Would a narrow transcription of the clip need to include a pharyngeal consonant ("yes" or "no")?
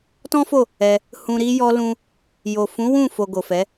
no